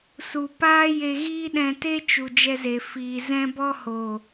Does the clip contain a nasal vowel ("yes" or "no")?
yes